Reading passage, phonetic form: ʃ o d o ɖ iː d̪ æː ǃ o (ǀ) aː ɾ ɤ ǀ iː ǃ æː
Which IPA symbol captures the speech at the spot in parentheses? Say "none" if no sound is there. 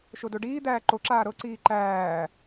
ǁ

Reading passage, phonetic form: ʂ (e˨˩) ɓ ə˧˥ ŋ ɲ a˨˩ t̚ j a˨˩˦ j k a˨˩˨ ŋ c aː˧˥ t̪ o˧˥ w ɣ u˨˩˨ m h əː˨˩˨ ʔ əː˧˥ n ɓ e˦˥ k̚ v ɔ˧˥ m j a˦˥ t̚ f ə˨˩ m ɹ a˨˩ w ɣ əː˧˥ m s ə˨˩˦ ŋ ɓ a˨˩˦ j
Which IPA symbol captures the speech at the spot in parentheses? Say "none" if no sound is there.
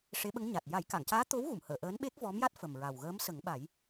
e˧˥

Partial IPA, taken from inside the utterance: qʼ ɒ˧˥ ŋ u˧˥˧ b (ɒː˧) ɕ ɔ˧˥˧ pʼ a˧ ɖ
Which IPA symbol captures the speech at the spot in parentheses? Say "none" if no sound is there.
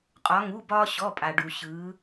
ɒː˥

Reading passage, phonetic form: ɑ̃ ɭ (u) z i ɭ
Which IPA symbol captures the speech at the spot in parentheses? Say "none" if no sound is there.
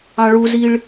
u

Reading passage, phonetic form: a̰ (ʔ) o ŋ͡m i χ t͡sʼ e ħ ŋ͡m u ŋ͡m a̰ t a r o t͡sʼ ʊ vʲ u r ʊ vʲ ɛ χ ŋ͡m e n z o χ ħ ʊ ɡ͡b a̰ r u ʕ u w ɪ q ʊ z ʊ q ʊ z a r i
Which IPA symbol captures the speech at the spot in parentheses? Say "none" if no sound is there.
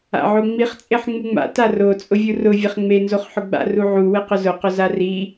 ʕ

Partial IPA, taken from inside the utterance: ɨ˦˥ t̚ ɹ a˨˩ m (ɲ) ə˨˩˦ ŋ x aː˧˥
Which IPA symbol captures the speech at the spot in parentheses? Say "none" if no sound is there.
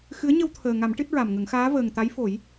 ŋ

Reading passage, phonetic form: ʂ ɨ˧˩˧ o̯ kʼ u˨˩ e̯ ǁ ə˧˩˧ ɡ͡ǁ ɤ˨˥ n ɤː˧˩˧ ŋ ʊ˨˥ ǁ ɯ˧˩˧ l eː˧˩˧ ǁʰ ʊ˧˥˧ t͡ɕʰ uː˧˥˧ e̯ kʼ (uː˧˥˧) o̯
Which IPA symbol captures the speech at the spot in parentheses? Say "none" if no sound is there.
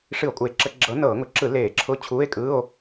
ɯː˧˥˧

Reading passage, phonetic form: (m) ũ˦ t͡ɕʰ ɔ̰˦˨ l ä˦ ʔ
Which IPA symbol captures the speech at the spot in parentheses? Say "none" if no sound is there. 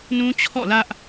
n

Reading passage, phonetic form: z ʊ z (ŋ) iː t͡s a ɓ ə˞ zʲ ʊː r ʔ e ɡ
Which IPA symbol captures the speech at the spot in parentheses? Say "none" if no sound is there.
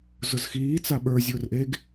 x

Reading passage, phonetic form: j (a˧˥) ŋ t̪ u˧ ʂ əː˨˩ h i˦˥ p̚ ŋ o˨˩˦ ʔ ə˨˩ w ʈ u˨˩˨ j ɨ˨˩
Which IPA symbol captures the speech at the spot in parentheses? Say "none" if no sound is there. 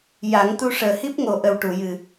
a˨˩˦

